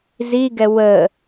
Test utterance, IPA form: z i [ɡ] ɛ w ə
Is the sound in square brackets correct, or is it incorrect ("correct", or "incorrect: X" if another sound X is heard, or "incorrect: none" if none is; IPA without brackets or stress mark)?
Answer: correct